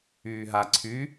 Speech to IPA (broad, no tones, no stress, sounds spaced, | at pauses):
yː ɦ a ǀʰ y